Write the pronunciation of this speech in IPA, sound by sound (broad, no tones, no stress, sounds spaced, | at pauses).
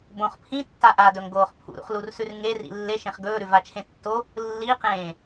b õ χ pʰ ĩ tː a ʔ a d ɵ ŋ ɡ oː χ pʰ ṵ ɾ ṵ χ l u r s ʉ r ŋ e r ḭ lː e ʃ ẽ χ ɡ ɵː ɾ ʉ v a t͡ʃʰ ẽ tː o | lː i q ẽː